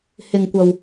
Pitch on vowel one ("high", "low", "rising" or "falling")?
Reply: low